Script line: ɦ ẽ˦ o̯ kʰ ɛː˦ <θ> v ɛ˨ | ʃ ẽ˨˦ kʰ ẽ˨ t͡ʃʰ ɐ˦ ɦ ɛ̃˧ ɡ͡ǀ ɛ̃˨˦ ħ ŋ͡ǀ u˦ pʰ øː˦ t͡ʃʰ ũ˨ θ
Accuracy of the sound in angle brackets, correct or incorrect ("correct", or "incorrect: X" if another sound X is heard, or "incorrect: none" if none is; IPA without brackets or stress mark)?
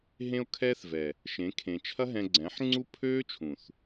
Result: correct